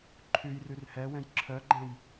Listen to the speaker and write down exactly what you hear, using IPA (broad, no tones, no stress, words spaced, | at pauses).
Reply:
ǃʰʉjrʉr hɛwɛ̃j ǁʰœɡ͡ǃɛ̃j